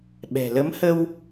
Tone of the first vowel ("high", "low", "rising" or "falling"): low